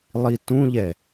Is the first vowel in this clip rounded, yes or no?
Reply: no